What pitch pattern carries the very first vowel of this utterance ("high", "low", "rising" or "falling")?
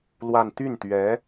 falling